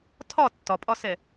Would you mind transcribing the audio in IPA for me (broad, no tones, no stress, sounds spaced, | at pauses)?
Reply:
tʰ ɒ tː ɒ pʼ ɒ s ɛ